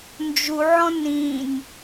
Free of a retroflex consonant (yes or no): yes